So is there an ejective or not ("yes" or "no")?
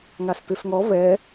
no